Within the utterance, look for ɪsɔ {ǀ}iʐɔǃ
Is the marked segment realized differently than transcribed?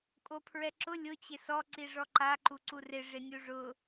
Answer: no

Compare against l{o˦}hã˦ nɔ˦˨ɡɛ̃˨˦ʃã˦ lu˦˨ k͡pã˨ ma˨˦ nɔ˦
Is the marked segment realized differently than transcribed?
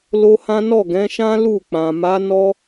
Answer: no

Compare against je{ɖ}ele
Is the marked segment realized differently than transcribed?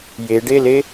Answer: no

